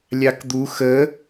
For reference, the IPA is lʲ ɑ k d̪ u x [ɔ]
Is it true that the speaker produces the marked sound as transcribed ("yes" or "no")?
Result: no